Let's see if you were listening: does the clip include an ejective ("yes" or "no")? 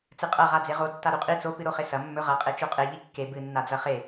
yes